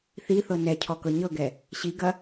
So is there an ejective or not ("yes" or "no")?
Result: no